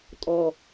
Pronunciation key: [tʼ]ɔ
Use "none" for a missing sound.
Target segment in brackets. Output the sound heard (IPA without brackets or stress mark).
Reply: tʼ